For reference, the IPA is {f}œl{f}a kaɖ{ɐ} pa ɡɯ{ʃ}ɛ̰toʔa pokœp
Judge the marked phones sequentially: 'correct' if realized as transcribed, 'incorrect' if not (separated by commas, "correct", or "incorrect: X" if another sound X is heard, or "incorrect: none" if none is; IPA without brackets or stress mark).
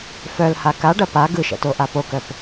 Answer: correct, incorrect: h, correct, correct